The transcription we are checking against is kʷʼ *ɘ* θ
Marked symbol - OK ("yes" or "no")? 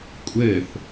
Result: yes